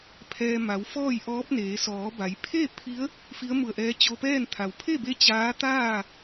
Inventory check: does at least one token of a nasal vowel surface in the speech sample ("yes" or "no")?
no